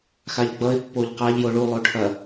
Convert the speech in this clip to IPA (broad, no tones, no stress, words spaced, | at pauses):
xaʎɡ͡bʌɪ̯ pːoʎqaʎ joɭu lˠoʈʰɐ